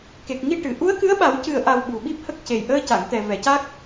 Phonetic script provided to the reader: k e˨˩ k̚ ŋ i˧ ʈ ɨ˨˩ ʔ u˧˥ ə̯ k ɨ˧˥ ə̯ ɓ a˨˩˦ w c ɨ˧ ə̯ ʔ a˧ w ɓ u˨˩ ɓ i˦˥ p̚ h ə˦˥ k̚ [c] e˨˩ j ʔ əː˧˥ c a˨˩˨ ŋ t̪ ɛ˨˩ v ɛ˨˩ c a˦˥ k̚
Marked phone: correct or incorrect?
correct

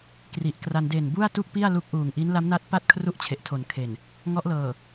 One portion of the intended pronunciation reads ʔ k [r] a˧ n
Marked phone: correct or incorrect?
correct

